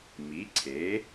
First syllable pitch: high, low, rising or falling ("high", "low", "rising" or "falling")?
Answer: rising